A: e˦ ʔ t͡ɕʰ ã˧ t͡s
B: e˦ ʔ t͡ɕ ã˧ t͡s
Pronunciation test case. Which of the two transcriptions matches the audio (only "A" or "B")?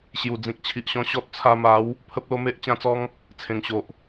B